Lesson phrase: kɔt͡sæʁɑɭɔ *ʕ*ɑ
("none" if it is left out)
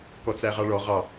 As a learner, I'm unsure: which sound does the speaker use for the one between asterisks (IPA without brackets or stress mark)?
ʁ